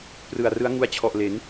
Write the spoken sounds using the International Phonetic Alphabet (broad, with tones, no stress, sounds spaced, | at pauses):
p r ɯ˨˩ a̯ r ɯ˦˥ a̯ ŋ u˧ a̯ t͡ɕʰ ɔ˨˩ ʔ l e˩˦ n